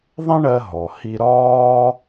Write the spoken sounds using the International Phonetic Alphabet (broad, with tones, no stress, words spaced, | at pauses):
ðˤẽ˥ɳɜ˧ɦɔ˩ hi˧ɾɒː˥